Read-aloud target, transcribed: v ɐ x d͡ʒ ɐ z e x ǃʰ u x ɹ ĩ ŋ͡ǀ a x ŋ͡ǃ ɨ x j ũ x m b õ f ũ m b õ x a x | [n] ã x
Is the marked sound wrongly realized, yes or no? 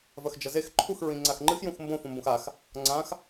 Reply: yes